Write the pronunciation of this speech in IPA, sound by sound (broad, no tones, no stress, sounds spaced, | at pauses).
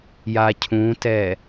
j a cʰ ũ t ɛ